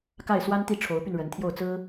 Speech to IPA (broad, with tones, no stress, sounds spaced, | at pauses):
k a˥˩ ɪ̯ s w a˥ n t̪ i˥˩ ʈ͡ʂʰ o˧˥ ʊ̯ p y˧ n ɻ ə˧˥ n t̪ʰ j o˥˩ ʊ̯ t͡s ɹ̩˥